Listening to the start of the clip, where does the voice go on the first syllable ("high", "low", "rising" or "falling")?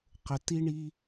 low